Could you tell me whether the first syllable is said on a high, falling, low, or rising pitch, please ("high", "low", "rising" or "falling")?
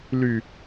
low